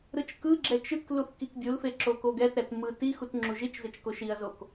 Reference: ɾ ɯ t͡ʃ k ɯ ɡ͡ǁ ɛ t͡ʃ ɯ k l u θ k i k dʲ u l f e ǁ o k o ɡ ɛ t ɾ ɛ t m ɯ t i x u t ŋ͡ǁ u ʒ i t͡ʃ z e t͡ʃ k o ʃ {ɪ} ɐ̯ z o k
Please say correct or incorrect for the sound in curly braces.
incorrect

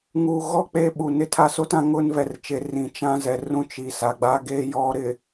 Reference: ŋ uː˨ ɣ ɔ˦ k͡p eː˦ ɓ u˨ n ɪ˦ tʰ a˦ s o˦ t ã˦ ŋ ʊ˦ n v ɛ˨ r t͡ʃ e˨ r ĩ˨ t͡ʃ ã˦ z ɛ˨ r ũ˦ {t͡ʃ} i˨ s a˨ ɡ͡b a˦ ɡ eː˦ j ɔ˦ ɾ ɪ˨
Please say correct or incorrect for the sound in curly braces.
correct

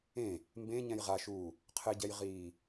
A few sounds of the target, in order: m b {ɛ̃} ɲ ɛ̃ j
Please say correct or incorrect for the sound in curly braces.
incorrect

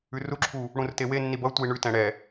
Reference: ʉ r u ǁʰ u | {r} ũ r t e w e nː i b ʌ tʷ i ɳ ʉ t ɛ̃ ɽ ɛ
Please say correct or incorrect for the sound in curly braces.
incorrect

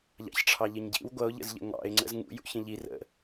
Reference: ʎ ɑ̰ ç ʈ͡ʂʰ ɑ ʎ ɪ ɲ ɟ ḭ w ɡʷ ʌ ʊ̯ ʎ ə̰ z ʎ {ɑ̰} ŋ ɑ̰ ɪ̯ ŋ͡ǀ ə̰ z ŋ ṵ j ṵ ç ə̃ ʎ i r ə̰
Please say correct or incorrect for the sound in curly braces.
incorrect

